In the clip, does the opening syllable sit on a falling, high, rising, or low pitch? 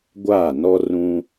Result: falling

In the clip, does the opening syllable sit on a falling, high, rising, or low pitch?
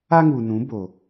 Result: high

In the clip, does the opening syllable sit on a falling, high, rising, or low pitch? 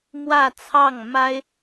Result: falling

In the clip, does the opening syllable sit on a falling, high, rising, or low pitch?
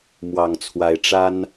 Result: low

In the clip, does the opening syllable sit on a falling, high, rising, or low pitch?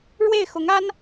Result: falling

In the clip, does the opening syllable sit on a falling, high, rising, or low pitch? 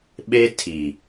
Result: high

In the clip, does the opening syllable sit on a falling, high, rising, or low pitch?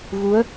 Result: rising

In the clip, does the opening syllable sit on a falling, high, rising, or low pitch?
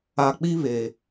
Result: low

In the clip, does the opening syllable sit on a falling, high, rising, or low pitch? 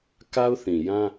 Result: high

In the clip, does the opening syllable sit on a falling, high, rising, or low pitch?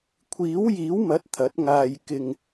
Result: rising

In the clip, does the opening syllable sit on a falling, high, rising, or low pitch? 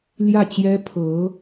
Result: falling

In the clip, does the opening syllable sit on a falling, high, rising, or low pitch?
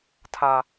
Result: low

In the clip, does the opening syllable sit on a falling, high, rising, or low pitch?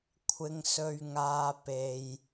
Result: high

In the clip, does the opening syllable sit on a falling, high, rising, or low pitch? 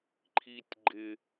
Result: low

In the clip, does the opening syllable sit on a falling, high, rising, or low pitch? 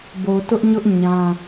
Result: low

